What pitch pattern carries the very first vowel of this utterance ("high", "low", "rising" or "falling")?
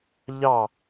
falling